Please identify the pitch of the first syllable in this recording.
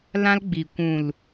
high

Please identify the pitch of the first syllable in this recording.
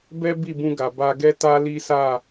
high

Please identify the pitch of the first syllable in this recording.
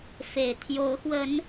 low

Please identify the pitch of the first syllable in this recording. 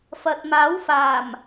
low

